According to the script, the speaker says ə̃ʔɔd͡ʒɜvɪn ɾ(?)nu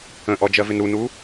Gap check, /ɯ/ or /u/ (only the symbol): u